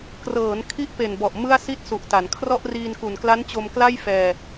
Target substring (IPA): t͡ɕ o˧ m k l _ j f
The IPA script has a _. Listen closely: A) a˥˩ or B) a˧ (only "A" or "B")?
A